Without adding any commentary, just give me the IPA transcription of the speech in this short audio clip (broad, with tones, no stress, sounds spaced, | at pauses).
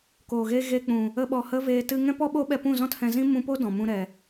k oː˨ ɣ e˧ ɣ e˧ k͡p ũ˨ | ə˦ ɓ ɔ˧ h ə˦ v eː˧ t ɨ˧ ŋ ɛ̃˦ p ɔ˦ ɓ o˦ ɓ ɛ˧ p ũ˦˨ z ɔ̃˦ t h ɛ̃˧ z ĩ˦ m ũ˧ p o˦ d ɔ̃˨ m ũ˧ ɾ ɛ˨